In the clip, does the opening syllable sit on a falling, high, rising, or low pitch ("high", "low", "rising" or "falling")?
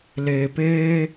low